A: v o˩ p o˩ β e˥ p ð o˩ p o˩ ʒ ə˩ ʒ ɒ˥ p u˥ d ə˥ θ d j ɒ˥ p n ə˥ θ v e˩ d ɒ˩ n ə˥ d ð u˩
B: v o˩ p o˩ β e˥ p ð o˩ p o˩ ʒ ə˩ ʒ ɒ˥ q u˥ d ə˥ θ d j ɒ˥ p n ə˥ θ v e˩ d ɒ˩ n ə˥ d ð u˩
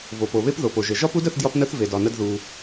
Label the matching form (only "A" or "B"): A